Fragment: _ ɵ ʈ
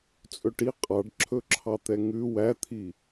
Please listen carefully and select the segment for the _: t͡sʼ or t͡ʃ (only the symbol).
t͡sʼ